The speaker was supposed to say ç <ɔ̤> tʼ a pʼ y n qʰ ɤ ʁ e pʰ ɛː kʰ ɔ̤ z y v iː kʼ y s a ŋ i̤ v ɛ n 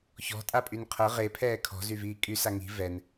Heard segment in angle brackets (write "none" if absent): ɔ̤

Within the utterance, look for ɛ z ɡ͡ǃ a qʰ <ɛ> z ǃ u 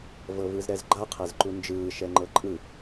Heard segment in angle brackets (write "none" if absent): ɛ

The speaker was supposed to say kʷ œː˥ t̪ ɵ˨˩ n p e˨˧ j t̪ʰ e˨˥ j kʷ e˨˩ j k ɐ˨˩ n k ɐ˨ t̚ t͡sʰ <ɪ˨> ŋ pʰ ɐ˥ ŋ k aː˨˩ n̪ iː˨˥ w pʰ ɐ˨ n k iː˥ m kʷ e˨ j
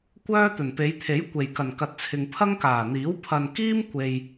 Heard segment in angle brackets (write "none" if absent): ɪ˨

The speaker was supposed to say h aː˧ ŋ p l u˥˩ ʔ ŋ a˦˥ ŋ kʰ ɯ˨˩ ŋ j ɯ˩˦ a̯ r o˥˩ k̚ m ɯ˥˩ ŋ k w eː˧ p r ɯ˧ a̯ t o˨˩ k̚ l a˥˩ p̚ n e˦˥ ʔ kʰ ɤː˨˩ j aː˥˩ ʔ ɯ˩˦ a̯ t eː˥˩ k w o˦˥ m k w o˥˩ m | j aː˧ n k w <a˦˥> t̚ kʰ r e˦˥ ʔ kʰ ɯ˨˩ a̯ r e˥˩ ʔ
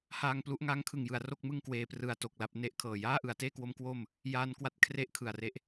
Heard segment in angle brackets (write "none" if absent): a˦˥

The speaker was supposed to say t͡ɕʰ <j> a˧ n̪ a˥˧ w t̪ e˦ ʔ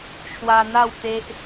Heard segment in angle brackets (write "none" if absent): w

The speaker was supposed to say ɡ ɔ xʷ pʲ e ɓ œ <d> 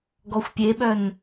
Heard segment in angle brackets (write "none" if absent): n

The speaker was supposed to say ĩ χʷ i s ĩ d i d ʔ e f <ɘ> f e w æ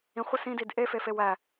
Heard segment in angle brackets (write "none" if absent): e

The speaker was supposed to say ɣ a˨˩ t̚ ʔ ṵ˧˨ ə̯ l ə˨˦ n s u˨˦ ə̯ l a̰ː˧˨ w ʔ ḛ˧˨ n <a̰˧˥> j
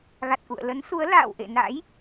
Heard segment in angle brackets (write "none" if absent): a̰˧˥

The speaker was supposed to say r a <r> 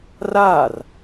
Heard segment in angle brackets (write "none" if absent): r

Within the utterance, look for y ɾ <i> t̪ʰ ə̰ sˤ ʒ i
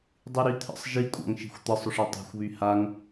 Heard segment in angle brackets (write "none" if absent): y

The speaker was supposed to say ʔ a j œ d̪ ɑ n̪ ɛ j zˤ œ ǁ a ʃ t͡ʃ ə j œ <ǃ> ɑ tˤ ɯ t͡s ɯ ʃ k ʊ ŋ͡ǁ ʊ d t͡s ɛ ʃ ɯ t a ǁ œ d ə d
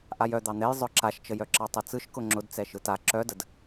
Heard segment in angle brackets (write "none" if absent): ǁ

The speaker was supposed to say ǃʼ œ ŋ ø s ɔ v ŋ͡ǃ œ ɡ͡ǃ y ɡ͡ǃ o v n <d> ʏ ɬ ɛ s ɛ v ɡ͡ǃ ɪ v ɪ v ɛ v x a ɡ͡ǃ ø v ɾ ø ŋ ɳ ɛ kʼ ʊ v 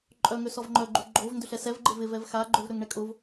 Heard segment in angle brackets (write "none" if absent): d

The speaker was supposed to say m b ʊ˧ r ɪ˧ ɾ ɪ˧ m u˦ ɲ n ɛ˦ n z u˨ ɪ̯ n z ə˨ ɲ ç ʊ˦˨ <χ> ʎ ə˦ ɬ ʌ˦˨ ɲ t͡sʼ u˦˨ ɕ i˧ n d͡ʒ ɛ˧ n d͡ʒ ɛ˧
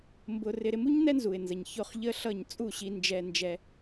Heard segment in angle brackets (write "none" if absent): χ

